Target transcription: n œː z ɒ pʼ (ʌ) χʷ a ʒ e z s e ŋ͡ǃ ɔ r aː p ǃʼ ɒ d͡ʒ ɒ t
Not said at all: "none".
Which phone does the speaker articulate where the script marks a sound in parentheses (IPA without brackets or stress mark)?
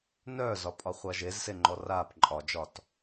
ɒ